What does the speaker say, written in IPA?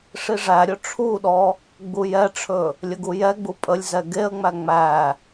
ʂ i ʐ æ ɾʲ ɵ ʈ͡ʂʰ u ɗ ɔ | ɡ͡b u j ɛ ʈ͡ʂʰ ɵ | lʲ ə ɡ u j ɛ ɡ͡b u pʼ ə lʲ z ɛ ɡ e ə̯ ŋ͡m æ ŋ͡m æ

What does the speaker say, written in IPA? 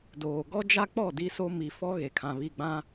d oː˨ ɡ ɔ˦ d͡ʒ a˦ k͡p ɔ˦˨ d i˦ s o˦ m i˨ f ɔ˦ ɣ e˨ kʰ ã˨ β i˦˨ ɡ͡b ã˦

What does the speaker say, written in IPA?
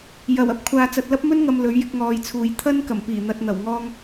j ɐ˨˩ w ɐ˥ p̚ kʷʰ aː˨ t͡s ɐ˨ t̚ l ɐ˥ p̚ m ɵ˥ n ŋ ɐ˨ m l ɵ˨˥ ɥ j ɪ˧ k̚ ŋ ɔː˨ j t͡sʰ uː˨ j t̪ʰ ɐ˥ n k ɐ˨˩ m p iː˨˩ n̪ ɐ˨ t̚ n̪ ɐ˨˩ w ŋ ɔː˧ ŋ

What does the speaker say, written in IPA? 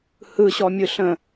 h ɯ ɕ ɔ mʲ ɯ ɬ ə̃

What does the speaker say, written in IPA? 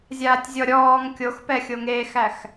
zʲ aː tʲ zʲ ɔ ɾʲ ɔː ŋ kʲ o x p ɛ xʲ o ŋ eː x æ x

